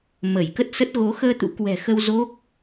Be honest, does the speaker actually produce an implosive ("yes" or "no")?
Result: no